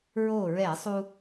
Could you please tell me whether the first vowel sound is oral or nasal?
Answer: oral